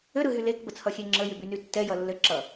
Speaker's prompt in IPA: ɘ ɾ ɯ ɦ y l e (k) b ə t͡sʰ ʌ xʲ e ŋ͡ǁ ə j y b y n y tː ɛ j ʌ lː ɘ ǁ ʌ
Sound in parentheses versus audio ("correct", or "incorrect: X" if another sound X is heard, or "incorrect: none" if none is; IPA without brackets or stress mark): correct